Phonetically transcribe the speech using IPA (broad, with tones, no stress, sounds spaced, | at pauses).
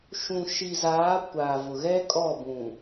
ʃ ũ˨ ʃ i˨ z aː˨˦ kʷ a˨ v ʊ˨ ɣ ɛ˦ kʼ ɔ˦˨ b ũ˨